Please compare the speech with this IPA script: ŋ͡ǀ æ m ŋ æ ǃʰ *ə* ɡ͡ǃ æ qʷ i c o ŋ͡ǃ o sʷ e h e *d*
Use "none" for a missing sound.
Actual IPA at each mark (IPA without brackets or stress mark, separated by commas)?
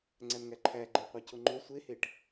æ, ʈ